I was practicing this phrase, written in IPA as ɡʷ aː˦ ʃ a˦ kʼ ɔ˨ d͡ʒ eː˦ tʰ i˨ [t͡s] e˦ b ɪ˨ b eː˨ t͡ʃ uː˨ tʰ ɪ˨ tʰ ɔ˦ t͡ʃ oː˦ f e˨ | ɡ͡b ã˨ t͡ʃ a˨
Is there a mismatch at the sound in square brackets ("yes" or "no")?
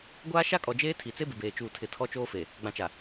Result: no